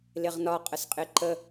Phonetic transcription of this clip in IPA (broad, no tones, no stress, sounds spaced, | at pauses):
l ɪ ʁ n ɒ qʼ ə s qʼ ɪ ǃ ə